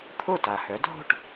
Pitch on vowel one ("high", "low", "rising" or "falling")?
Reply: falling